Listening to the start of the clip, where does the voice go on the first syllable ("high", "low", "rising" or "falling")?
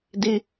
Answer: high